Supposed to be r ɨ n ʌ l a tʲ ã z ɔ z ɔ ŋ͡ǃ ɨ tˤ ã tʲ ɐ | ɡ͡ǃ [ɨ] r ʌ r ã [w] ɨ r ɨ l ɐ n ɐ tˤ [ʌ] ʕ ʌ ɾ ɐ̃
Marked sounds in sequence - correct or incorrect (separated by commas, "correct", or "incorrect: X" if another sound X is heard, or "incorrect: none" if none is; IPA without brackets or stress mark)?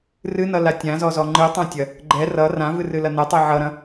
incorrect: ɛ, incorrect: v, correct